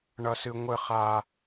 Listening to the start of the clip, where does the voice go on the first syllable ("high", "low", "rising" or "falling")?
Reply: high